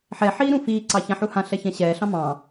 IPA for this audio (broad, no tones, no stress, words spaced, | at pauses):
ħɛħiː ɾũfiːǀɑ çãħuhãɬɛ çɛ̃ɕɛːɬɑ̃ mɑ̃